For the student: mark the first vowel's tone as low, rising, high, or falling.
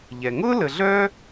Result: low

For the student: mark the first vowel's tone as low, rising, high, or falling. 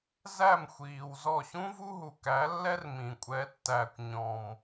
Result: falling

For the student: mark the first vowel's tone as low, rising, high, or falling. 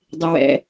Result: low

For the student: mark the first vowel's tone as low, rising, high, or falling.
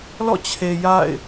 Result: falling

